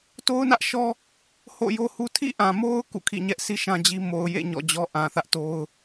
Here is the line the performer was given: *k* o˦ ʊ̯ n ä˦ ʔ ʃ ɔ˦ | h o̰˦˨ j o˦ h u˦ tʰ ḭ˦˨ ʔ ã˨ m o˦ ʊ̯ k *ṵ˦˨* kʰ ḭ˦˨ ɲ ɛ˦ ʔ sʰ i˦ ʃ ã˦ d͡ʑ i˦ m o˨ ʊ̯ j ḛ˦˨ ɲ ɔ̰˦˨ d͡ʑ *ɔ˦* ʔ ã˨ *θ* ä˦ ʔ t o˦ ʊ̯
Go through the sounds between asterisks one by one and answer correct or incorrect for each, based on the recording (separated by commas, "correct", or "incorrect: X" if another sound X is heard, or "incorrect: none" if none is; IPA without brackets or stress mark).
incorrect: t, correct, correct, correct